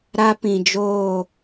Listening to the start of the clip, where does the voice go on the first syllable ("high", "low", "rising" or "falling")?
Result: high